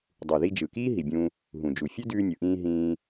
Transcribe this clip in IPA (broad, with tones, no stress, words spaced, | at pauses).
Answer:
dˤu˨ði˧d͡ʒɯ˨kiː˦ ɦi˨bʲũ˧ | ɦũ˨d͡ʒu˨ fʲʉ˦dʉː˧nʲɯ˨ʔĩː˧ ɦĩː˧